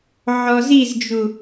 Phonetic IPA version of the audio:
ʕɔzizd͡ʒu

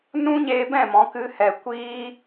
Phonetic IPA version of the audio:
nũ˦ɲeː˧bɛ̃˦˨ mɔ̃˨˦kɨ˦hɛ˧ kʷiː˦

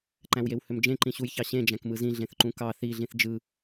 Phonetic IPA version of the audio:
ǃæ̃wjewhømd͡ʒẽ ǃĩɕujçɑɕẽ d͡ʒæ̃kmɯzĩ ɮẽθǃũkɑ θi ɮĩθd͡ʒɯ

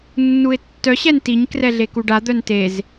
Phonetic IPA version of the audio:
nːuɪ̯tːœ ɕɛntiɲ krɛɮekuɖa d̪œntez

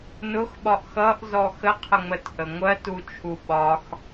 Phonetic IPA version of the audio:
nʊxɓɒʔ xʌʔzɔ xəqʰəŋ͡mətʔə ŋʷɜtut͡ʃʰu ɓɒx

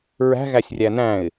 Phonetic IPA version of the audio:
ɹæ̤ ɣæsʲrʲænæ̃ɪ̯

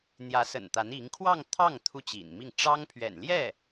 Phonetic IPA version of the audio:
n̪jä˧˥sə̰˨˩n t̪a˧˥ni˧˥ŋ kʰwɑ˥˧ŋt̪ʰɑ˥˩ŋ t̪ʰu˥t͡ɕḭ˨˩nmi˥˩ŋ ʈ͡ʂɑ˥ŋpʰɥɛ̰˨˩nljɛ˥˩

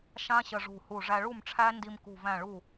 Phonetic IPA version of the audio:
ʃã˦˥ ɕə˧ʐṳ˧˩hu˧˩ ʐæ˧ɭu˥˩mʈ͡ʂʰæ˦˥ ndi˧mkṳ˧˩væ̃˧˩ɭu˧˩

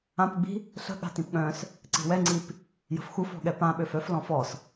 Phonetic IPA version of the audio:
ãpɡ͡bi̤ | ɬə̤ ɠa̤tĩpɠœ̃s | ǀi̤wɛŋ͡ǀip | jə̤fxuf ɔ̤ɠɛpãɓøf œf lɔ̃fɔs

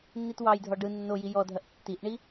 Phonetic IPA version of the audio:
nːitwɑjdʱɔ ɖɯ nːoji jɔdʱɐʔ tːiʔɳi

